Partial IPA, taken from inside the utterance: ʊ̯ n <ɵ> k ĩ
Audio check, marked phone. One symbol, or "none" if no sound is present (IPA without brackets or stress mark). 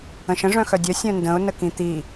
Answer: ə